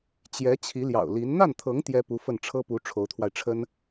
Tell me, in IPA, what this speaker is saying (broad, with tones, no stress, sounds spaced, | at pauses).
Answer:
t͡ɕ j ɛ˧˥ t͡ɕʰ i˧˥ l j ɑ̰˨˩ ʊ̯ l i˧˥ n n̪ a˥˩ n t̪ʰ ɤ˧˥ ŋ t̪ j ɛ˥ p u˧˥ f ə˥˩ n ʈ͡ʂʰ ɤ˥ p u˧˥ ʈ͡ʂʰ o˧˥ ʊ̯ t̪ʰ w a˧ ɪ̯ ʈ͡ʂʰ ə˥ n